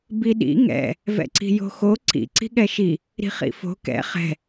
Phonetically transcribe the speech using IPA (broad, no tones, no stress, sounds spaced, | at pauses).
b i ɗ ḭ ŋ ɛ̰ | v ɛ̰ ǀ i̤ j o̤ x o ǀ ḭ ǀ i̤ ɠ ɛ ʃ i | ɾ i̤ χ ḭ f o̤ k ɛ̰ χ ɛ̤